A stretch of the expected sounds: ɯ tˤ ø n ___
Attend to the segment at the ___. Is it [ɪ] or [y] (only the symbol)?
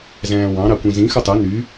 y